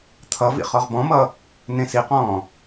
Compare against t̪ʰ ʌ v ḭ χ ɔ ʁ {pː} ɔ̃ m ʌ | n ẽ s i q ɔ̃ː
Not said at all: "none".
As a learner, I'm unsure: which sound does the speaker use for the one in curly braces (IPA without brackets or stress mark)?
b